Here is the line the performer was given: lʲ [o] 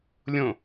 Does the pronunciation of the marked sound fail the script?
yes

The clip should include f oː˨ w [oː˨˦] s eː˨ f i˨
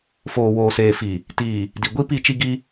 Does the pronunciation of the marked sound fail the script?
yes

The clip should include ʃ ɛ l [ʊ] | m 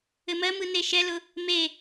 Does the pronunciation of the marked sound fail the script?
no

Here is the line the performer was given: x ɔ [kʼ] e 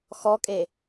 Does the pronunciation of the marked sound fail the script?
no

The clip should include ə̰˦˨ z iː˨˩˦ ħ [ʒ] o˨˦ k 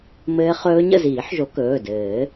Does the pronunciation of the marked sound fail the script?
no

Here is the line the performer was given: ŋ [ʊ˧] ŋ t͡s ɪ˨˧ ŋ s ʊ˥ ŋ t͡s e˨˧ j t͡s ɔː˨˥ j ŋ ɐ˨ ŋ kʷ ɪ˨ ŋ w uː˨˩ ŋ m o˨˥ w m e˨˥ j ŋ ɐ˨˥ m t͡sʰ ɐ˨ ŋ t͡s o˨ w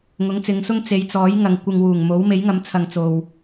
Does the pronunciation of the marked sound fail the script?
yes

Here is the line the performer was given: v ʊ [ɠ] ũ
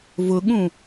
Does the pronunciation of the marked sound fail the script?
no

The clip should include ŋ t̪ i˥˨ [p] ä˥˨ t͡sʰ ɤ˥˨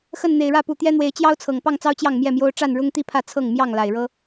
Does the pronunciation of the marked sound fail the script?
yes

